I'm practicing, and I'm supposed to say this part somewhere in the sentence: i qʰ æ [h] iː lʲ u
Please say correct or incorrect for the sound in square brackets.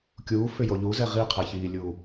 incorrect